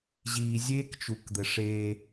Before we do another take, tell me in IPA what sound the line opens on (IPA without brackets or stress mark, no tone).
ʑ